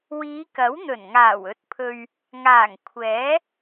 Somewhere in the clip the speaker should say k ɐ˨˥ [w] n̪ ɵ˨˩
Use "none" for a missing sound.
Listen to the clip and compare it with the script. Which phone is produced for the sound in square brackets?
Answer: w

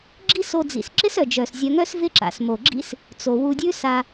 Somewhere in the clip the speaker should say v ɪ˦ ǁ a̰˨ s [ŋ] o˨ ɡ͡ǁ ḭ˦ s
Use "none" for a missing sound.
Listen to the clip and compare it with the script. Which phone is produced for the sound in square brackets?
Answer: m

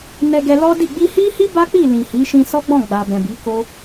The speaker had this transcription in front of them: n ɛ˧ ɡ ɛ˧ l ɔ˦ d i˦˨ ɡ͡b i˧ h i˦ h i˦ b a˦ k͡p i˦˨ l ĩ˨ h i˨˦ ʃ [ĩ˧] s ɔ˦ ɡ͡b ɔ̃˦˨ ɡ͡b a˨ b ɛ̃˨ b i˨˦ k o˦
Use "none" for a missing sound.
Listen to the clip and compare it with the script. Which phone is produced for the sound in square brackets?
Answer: ĩ˧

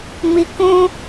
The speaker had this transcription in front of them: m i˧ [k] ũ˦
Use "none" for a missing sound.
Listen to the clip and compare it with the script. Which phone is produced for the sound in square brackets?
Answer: k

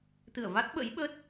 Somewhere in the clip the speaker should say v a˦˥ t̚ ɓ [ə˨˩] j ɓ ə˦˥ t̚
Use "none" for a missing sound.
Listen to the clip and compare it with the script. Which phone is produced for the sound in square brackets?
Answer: ə̰˧˥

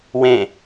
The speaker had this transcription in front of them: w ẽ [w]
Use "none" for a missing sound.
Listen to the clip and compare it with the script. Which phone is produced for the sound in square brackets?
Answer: none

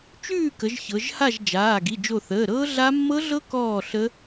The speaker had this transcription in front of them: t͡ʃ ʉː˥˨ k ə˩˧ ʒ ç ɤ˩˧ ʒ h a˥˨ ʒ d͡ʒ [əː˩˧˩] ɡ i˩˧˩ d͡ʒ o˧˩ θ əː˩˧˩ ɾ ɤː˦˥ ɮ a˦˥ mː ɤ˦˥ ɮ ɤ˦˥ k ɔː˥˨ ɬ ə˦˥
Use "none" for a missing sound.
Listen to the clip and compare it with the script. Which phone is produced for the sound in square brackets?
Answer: aː˩˧˩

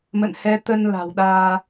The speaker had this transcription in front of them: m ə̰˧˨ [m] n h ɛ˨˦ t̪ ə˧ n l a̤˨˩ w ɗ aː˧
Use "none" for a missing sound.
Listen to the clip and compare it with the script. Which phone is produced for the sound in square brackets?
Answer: none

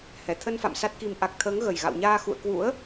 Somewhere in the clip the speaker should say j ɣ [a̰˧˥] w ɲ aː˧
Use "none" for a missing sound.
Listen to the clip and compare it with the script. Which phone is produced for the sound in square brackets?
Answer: a̰˧˨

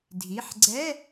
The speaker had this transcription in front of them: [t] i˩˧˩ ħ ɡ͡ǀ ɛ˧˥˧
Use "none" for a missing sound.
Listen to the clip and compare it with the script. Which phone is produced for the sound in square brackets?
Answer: dʱ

